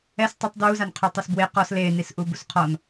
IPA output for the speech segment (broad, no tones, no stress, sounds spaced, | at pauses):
ɛ s tˤ ɪ tˤ d w u z a n qʰ ø tˤ ɛ s b w e q ɔ s l e n i s ʔ u b u s qʰ ɔ n